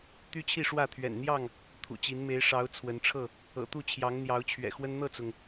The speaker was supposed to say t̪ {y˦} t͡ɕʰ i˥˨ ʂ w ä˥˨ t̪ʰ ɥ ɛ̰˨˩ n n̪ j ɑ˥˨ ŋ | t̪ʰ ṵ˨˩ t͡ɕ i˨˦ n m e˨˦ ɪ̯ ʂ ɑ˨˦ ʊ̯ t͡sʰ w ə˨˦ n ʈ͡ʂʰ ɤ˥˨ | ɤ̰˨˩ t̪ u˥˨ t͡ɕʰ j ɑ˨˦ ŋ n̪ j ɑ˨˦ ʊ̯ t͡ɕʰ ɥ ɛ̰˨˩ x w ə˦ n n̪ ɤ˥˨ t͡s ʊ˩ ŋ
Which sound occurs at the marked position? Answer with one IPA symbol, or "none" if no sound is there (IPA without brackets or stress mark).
y˦